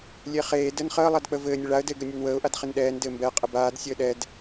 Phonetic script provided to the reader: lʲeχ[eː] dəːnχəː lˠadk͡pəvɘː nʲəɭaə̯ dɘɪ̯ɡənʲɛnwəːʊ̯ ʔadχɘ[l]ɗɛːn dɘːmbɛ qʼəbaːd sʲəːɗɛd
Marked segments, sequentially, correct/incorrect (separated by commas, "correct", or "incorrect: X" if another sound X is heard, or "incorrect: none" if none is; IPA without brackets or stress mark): correct, incorrect: n